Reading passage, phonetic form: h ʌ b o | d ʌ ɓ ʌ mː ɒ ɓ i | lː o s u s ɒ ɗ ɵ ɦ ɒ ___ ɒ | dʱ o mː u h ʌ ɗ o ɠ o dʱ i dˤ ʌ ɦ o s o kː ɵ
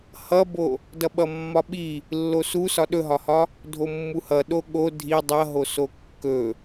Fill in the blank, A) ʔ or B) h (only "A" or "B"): B